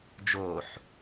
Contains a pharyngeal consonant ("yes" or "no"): yes